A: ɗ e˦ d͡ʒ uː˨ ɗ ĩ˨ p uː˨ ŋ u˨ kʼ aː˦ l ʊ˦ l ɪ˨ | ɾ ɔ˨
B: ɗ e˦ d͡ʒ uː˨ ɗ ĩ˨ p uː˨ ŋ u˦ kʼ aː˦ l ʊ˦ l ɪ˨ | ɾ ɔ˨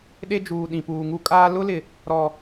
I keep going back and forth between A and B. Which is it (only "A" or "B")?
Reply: B